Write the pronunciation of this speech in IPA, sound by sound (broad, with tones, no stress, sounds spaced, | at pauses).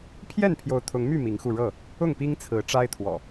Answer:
pʰ j ɛ˥˨ n pʰ j o˨˦ ʊ̯ t̪ʰ ʊ˨˦ ŋ m y˥˨ m i˨˦ ŋ x u˧ ɻ ɤ˥˨ | ʊ˥˨ ŋ p i˦ ŋ t͡sʰ ɹ̩˨˦ ʈ͡ʂ a˦ ɪ̯ t̪ʰ w ɔ̰˨˩